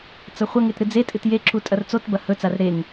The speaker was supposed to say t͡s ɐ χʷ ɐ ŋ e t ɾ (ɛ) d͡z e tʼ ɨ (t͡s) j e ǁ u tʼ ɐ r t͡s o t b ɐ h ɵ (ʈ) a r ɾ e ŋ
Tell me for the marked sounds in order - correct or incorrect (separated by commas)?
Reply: incorrect, incorrect, incorrect